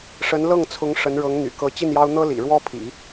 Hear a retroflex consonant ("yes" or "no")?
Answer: yes